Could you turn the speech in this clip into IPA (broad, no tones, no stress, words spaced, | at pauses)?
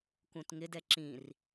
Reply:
kũtŋɪd ɛǁĩr